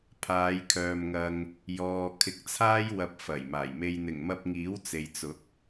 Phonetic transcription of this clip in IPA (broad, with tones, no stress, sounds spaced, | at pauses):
pʰ aː˨˧ j kʰ œː˨ m ŋ ɐ˧ ŋ | j ɔː˨ kʰ ɪ˨˥ k̚ t͡sʰ aː˥ j w ɐ˧ p̚ f ɐ˨˩ j m aː˨˩ j m e˨ j n̪ ɪ˨˩ ŋ m ɐ˧ p̚ ŋ iː˨˥ w t͡s e˨ j t͡s ʊ˨˥ k̚